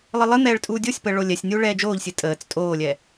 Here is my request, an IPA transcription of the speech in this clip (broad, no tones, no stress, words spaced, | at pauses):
lˠɨlˠɨn̪ɛːɭ tʼuːdʲosʲpəː ɭolʲɛsʲnʲuː ɭɛːd͡ʒoːʎsʲɨ tʼəːt͡s tʼoːlʲɛ